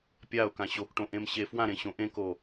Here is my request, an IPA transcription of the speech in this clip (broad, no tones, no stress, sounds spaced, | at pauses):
pʲ a ʊ̯ k ã ɕ o k ʈ õ ʔ ẽ m ɕ e f w ã ɾ ẽ ɕ õ ʔ ẽ k o